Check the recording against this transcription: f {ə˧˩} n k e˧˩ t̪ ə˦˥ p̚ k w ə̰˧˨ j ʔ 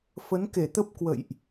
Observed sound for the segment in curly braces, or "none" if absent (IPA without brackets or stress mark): ə˨˦